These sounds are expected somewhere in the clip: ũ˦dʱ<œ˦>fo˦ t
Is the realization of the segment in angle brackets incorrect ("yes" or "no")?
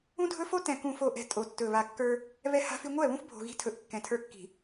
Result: yes